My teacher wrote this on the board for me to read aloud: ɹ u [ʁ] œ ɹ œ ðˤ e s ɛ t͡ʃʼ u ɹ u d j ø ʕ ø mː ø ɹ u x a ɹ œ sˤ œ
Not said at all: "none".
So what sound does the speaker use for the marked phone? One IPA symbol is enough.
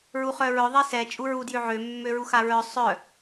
χ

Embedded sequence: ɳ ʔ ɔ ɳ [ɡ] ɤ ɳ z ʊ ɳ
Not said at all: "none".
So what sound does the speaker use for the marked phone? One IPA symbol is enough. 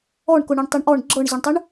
ɡ͡ǁ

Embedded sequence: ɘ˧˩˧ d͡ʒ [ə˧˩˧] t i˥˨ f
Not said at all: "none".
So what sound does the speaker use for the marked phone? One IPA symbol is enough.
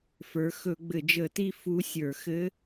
ə˧˩˧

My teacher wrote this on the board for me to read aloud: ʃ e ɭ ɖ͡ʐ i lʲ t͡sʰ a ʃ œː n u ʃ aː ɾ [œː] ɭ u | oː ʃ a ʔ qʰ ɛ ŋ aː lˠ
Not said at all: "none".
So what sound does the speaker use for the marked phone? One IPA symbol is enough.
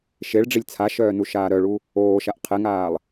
œ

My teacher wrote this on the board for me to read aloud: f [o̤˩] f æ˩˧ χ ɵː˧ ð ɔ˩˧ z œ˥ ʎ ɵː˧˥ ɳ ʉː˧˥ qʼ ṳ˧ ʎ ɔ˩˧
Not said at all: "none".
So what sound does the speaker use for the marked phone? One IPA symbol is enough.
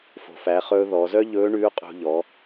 o̤˩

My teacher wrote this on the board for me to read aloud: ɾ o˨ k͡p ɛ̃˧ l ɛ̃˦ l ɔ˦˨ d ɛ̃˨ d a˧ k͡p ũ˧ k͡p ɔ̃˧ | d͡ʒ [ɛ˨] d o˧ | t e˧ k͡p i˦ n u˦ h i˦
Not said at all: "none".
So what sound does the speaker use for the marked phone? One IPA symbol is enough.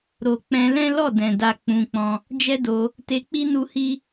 ɛ˦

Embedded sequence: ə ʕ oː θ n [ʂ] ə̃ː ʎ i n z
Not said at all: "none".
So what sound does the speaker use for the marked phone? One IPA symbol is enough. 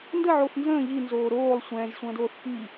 z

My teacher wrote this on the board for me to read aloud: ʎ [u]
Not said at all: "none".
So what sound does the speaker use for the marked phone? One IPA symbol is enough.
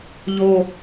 o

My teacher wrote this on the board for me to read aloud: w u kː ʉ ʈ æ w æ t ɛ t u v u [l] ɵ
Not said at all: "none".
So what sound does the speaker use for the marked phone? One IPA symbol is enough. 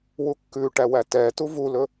l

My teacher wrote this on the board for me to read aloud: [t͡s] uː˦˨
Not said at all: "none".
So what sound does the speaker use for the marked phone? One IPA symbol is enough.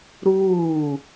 ɾ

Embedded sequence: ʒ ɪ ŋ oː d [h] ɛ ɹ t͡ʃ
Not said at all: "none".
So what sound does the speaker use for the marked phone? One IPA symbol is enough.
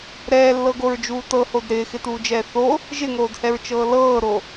h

